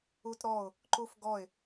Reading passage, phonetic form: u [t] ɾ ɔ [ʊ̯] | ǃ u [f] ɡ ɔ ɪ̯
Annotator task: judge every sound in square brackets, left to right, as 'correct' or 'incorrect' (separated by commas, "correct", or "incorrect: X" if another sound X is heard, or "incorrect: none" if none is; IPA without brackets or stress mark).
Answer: correct, correct, correct